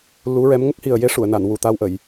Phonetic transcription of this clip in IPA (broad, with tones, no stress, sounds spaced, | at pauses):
l u˧˥ ɹ ɛ˧˥ m ŋ ə˦˥ k̚ h i˨˩ ə̯ j e˧˥ ʂ u˨˩˨ ə̯ n a˨˩˨ n w u˨˩ t̪ a˧ w ʔ ə˨˩˨ j